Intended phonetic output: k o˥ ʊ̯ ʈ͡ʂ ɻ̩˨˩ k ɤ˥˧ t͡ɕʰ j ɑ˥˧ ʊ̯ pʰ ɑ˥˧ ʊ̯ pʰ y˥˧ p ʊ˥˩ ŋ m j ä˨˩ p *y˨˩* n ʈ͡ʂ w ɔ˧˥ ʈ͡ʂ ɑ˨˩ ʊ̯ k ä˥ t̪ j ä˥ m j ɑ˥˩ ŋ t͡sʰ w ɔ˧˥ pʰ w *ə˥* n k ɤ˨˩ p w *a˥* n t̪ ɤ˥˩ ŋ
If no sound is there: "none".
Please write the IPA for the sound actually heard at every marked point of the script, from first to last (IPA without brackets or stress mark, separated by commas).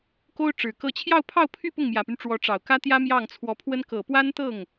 y˦, ə˥, a˥